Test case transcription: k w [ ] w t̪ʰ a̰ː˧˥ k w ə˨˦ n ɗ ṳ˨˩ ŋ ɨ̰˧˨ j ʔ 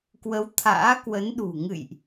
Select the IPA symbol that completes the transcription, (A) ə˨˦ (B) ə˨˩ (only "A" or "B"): A